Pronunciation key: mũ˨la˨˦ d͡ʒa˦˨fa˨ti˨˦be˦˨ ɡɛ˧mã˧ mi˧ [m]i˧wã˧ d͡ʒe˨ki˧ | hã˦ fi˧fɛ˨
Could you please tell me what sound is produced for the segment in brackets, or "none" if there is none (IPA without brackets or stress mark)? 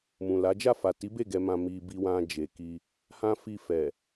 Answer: b